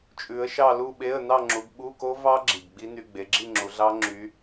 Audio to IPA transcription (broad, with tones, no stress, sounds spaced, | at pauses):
t͡ʃʼ ʉ˨˦ ə̯ ʃ ɑ˥˧ l u˥˧ ɓ e˧˥˧ ə̯ n ɑ˥˧ ŋ͡ǁ u˨˦ ɡ ɓ u˧˥˧ k o˦˥ v ɑ˦˥ ɡ͡ǁ i˨˩ ɡ ɡ͡b i˦˥ n y˧˥˧ ɡ͡b e˨˦ ɡ͡ǁ i˥˧ ŋ͡ǁ u˨˦ ɮ ɑ˦˥ ŋ͡ǁ y˨˦